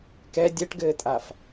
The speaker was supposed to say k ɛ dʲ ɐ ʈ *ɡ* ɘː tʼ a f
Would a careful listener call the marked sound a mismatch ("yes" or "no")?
no